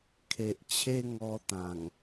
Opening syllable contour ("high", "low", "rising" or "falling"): low